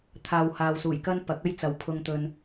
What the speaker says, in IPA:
t̪ʰ aː˨ w h aː˨ w s uː˨˩ j k ɐ˥ n p ɐ˨˥ k̚ ɐ˥ j t͡s ɐ˨˥ w pʰ ʊ˧ ŋ t̪ ɵ˧ n

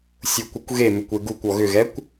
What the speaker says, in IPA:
sʲ u kʷ e kʷ ɣ e m ʏ kʷ e ɡ u kʷ ɔ ɣ ʏ ɣ ɛ kʷ

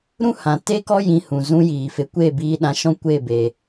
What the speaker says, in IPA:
ɾ ũ˦ h ã˨ t e˦ k ɔ˦ j ĩ˧ h ũ˨ z ũ˦ j iː˨ f e˧ kʷ e˦˨ b iː˧ ɗ ã˧ ʃ ɔ̃˦ kʷ e˦˨ b e˨

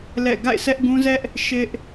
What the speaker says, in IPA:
l ɛ̰˦˨ ɡ a̰˦˨ ɪ̯ s ɛ˦ ʔ ɡ ũ˦ z ɛ˦ ʔ | ʃ ɪ˦ ʔ

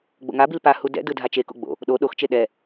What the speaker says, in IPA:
ɡ͡b o̰ ŋ a b i l p a h u d ɛ̰ d ɯ dʱ a t͡ʃ e k o̰ ɡ͡b o̰ | ɗ o ɗ o x t͡ʃ e ɗ ɛ

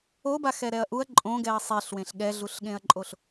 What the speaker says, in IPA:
o b a x ɛ ɾ ɛ ɐ̯ ʔ u ɐ̯ ǃʼ õ ɡ ɛ ɐ̯ sˤ e ɬ w ẽ ɬ ɠ ɛ ɮ u ɬ ɠ ẽ ɐ̯ ǃʼ o ɬ

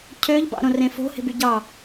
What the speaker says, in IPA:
cʰ ø ʎ b ɑ̰ ɾ õ r ẽ f o̤ h e̤ b y ɟ ɑ

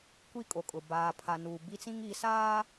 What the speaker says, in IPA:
kʷ i˦˨ kʼ o˨ kʼ ʊ˨ b aː˨ pʰ a˨ n u˨ b i˦ t͡s ĩ˦ ŋ i˨˦ s aː˦

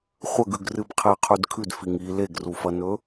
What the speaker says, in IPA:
χʷ ɐ ɡ ʉ ɡ r ɨ b qʰ e qʰ ʉ d kʰ ʉ d f i ŋ i l e ɡ r u f ɐ n ɵ

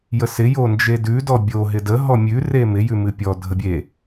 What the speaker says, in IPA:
j ə s ɪ j o n d͡ʒ e d ʉ d ɔ bʲ o ɦ ɪ d ə ɦ ɔ mʲ ʉ r e m ɪ j ʉ m ɨ pʲ ɔ dʱ ə bʲ e

